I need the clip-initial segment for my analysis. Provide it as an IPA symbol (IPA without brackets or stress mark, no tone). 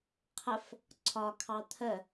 qʰ